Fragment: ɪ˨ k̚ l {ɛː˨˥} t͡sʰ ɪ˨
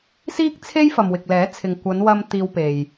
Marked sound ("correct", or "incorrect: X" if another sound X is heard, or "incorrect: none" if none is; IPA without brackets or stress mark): correct